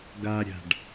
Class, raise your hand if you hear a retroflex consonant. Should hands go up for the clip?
yes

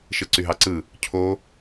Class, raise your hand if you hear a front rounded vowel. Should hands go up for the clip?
yes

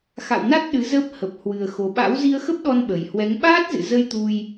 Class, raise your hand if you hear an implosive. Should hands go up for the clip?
yes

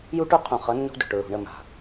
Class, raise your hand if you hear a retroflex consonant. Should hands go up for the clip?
yes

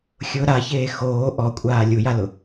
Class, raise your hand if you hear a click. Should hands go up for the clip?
no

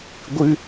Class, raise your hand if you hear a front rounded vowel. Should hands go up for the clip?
no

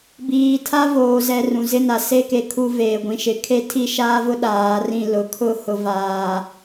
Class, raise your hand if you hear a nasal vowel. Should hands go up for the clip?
yes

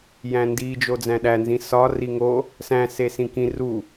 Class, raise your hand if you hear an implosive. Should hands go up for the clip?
yes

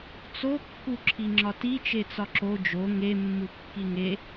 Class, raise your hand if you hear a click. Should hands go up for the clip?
yes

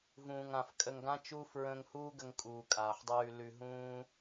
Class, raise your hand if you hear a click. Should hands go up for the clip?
no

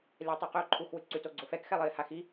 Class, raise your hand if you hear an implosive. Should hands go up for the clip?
no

